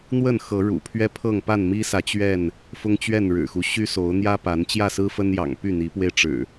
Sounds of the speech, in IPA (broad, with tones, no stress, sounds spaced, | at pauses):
n̪ w ə˥˨ n x ɤ˨˦ ɻ ṵ˨˩ pʰ ɥ ɛ˦ pʰ ɤ˥˨ ŋ p a˥˨ n m i˦ s ä˨ t͡ɕ ɥ ɛ˥˨ n | f ʊ˦ ŋ t͡ɕ ɥ ɛ˥˨ n ɻ ɻ̩˨˩ x u˦ ɕ y˦ s o˨˦ ʊ̯ n̪ j ä˦ p a˨˦ n t͡ɕ j ä˥˨ s ɹ̩˦ f ə˦ n j ɑ̰˨˩ ŋ p y˥˨ n̪ i˨˦ p w e˧ ɪ̯ ʈ͡ʂ ɻ̩˨˩